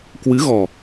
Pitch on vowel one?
rising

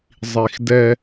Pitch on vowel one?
low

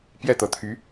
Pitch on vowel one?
falling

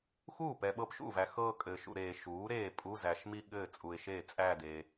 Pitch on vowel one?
falling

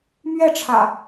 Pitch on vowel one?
falling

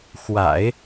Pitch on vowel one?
low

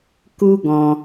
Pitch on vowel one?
high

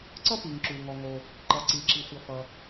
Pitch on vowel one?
high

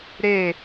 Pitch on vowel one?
falling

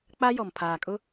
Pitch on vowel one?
high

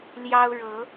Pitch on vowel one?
high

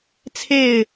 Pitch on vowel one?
falling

